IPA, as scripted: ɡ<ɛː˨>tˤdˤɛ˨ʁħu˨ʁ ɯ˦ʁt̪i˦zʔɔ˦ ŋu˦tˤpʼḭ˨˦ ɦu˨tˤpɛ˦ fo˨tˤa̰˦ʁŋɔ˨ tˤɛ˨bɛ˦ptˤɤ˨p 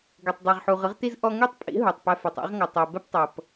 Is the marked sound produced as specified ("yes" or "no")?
no